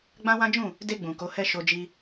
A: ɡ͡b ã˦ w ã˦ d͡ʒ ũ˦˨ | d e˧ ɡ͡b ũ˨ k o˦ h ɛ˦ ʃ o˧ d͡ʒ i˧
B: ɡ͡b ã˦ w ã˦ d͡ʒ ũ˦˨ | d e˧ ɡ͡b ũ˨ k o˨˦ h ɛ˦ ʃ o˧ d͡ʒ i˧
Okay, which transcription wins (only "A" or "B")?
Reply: B